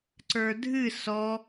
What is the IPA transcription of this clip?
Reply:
ǀə˞dʱɨ sɔ

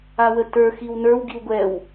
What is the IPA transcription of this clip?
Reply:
awətə˞ xiwnə˞w ɡiwɡʷɛw

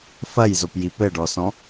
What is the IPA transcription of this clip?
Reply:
fɐj zopji pɘɖɔsɔ̃

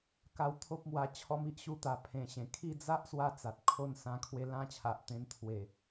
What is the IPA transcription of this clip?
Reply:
ka˥˧w t̪ʰo˦p̚mwa˧ t͡ɕʰɔ˦m i˦ʔɕu˧t̪a˨˩ pʰẽ˨˩ɕẽ˨˩ kʰi˥˧d͡za˦ʔ swa˦t͡sa˨t̚ kʰo˥˧n sã˧kʰwe˧ lã˦t͡ɕʰa˨ʔt̪ẽ˧n t̪ʰwe˨˩

